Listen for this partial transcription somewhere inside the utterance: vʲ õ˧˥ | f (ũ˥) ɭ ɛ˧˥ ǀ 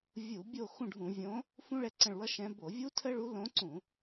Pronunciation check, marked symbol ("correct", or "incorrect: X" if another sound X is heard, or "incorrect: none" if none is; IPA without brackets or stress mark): correct